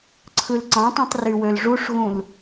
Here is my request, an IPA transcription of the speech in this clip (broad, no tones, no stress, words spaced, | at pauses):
ǀʰɯlǀɑ̃tˤĩtˤ rywølʐuʂɣũl